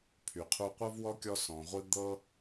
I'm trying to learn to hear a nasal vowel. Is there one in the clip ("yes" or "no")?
yes